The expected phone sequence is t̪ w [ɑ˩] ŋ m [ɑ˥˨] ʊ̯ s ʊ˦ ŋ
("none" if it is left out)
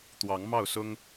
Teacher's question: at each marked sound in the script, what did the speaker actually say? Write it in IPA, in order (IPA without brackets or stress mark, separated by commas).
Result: ɑ˨˦, ɑ˥˨